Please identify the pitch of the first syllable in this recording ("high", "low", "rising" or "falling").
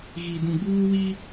low